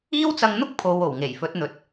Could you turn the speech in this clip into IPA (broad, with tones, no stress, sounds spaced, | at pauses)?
iː˥ w t͡s ɐ˧ ŋ n̪ ʊ˥ k̚ pʰ o˨˧ w o˨˩ w ŋ e˨˩ j f ɵ˨˥ t̚ n̪ ɵ˨ t̚